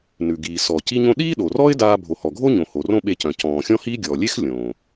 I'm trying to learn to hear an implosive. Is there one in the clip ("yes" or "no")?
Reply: yes